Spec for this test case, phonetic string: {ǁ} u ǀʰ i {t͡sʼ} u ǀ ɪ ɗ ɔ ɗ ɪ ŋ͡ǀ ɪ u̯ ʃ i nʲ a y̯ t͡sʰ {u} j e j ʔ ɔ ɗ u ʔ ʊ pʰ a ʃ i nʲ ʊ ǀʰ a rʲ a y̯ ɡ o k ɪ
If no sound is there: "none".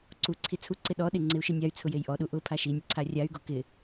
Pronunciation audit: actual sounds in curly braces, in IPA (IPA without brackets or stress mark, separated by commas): ǀ, t͡sʰ, ʊ